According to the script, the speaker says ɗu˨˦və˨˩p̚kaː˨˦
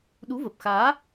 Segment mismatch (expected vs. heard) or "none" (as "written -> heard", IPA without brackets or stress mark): k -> x